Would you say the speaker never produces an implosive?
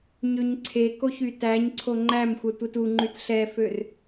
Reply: yes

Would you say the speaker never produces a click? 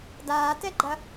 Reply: no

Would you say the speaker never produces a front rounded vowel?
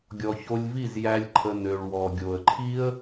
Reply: no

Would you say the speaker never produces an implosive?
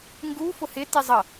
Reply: yes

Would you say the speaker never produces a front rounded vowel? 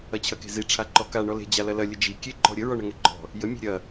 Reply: yes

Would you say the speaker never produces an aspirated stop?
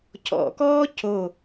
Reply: no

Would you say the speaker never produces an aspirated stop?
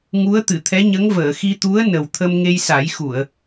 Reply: no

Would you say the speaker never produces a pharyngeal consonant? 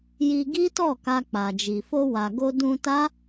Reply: yes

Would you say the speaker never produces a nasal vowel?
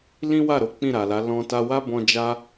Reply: no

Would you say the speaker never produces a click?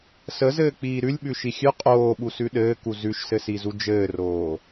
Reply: yes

